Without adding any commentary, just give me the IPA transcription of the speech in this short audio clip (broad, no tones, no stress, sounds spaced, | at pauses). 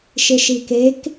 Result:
ʃ ɪ ʃ i k e k